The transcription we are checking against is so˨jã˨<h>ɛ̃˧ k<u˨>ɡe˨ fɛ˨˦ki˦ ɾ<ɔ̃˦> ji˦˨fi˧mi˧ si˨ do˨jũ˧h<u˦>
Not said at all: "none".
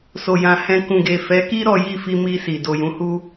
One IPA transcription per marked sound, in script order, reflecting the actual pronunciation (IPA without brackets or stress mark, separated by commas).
h, ũ˨, ɔ˦, u˦